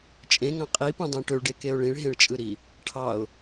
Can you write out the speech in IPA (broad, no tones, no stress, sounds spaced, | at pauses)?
t͡ʃʼ ẽ ŋ ɑ̃ qʼ i p ũ dˤ ẽ ʈ ø ɭ ɖ e k e ʊ̯ ɭ ĩ ɭ ɦ ẽ ɭ t͡ʃʼ ɯ ɾ i | ʈʰ ɑ ʊ̯